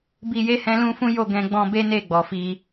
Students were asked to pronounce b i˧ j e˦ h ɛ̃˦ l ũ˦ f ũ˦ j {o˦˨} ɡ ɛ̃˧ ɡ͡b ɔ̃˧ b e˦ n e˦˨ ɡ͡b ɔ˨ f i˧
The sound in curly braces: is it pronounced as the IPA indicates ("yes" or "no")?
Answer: yes